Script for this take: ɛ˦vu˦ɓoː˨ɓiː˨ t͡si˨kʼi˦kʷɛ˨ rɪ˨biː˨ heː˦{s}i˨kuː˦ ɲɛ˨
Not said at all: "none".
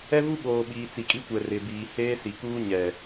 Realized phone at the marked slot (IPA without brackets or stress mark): s